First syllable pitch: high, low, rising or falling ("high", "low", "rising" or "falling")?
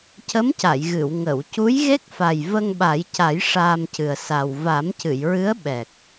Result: rising